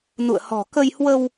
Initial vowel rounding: rounded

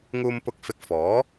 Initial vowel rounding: rounded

